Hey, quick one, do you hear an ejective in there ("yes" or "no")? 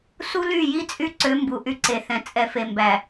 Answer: yes